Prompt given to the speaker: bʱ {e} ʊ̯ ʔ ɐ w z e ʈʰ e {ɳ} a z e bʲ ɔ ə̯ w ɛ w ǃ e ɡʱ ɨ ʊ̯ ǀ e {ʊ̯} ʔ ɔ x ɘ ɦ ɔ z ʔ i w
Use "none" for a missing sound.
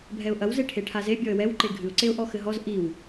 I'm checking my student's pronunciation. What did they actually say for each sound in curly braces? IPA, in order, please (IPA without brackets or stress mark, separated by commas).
ɛ, ʈʰ, ʊ̯